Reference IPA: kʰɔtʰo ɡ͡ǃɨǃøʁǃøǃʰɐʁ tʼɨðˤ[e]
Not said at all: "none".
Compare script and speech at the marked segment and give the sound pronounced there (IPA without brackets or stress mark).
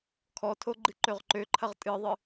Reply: ɨ